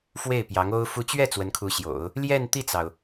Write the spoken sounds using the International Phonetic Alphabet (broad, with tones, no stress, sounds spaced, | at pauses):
f w e˥˩ ɪ̯ p j ɑ˧˥ ŋ o˥ ʊ̯ f u˧˥ t͡ɕ ɥ ɛ˥˩ t͡s w ə˧˥ n kʰ u˧˥ ɕ j o̰˨˩˦ ʊ̯ | l j ɛ˥˧ n t̪ i˥˩ t͡s ɑ˩ ʊ̯